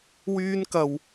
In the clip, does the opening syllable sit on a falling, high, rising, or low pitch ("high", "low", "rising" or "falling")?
high